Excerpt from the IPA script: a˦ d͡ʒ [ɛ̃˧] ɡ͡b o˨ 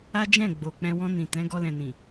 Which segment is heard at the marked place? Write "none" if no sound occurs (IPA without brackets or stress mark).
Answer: ɛ̃˦˨